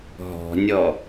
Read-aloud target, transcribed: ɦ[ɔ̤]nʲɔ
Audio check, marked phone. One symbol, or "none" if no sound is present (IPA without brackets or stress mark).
ɔ̤